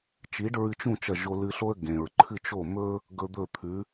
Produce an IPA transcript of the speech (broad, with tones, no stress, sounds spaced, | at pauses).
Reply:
t͡ʃ i˩˥ ɖ ɹ ɨ˧ t͡ʃ ũ˥˩ t͡ʃ ɐ˥˩ ʒ o˧ l ɨ˧ ɬ o˥ ə̯ ɡ ẽ˩ ɹ ǃʰ ɨ˥˩ t͡ʃ o˥˩ m ɵ˥ | ɡ ɵ˧ d̪ ɵ˥˩ t̪ʰ ʉ˩˥